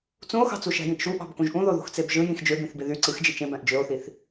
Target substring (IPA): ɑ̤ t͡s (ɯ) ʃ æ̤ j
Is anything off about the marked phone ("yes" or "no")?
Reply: yes